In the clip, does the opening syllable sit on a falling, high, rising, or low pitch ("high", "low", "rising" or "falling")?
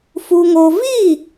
high